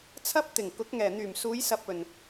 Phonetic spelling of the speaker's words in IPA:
t͡sʰ ɐ˥ p̚ t̪ ɪ˨˩ ŋ k ʊ˨˥ k̚ ŋ ɛː˨˩ n̪ yː˨˩ m s uː˨˧ j s ɐ˨ p̚ ɵ˨˩ n

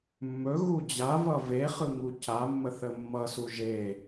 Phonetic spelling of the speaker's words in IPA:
mː ɵ ɣ u d͡ʑ a v ʌ v e χ ɯ ŋ u c a mː ə θ ə mː ʌ s u ʒ e

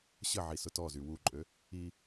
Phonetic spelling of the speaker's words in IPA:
ɕ ə ʕ i s ʊ t ɔ z y w u ǃʼ ø | i

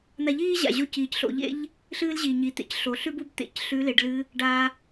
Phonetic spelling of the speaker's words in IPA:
n̪ a˧ ʎ iː˥ ʑ a̰˩ ʑ o˧ c iː˩ c ɬ o̰˩˧ ʎ ḛ˥ ʎ | ɬ ɨː˥ l ʑ i˩ ɲ i˩˧ t̪ ḛ˧ c ɬ o˩˧ ɬ ʉ˥ b u˧˥ b t̪ ḛ˩˧ c ɬ ʉ˧˥ l e˩˧ ɖ l ɨ˧˥ | ɖ a˧

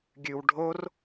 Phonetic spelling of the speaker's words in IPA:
ɡʲ ʉ w ɖʱ o r

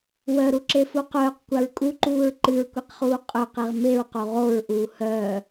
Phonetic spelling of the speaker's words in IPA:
w œ ɾ u ǁ e f u q œː q kʷ a ɹ kʼ u ǃ uː ɹ ǃ ɨ ɹ kʷ e q χ uː qʼ œ q e ʁ m e ɹ q o ʁ o ɹ ʔ uː h œː

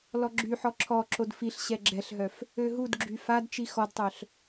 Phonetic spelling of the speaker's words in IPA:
l ɔ ɡ͡ǁ y ħ ɔ ǁʰ ɔ ǁ o d f i ɬ ɕ ɛ ɡ͡ǁ ɛ ɬ ɦ œ f | ø ɦ u d ɡ͡ǁ y f a d t͡ʃ i x ɔ d tˤ œ ɬ

